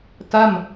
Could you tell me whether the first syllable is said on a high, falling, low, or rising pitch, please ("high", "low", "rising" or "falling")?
falling